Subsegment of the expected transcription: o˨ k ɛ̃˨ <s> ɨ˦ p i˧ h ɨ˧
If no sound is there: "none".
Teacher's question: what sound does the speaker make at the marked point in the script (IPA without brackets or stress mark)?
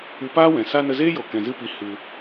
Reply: z